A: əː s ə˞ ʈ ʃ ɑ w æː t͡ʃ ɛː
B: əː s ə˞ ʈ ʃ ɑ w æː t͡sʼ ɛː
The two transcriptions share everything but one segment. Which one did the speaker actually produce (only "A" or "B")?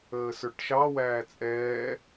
B